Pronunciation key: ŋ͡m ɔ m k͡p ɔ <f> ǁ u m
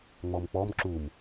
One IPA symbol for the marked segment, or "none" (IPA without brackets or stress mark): m